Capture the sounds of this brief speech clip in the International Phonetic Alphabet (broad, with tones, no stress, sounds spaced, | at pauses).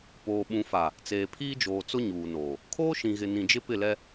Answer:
p oː˨ ɓ ũ˨ f a˨ | t͡s eː˨ pʰ iː˦ d͡ʒ oː˨ t͡s ʊ˦ ɲ uː˨ n oː˨ | kʰ oː˦ ʃ ĩ˨ ɣ ɪ˨ n ĩ˨ d͡ʒ ɪ˦ p ɪ˦˨ l ɛ˦